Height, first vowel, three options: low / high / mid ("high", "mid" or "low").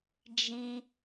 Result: high